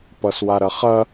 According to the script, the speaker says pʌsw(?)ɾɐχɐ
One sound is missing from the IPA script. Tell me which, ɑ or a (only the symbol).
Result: a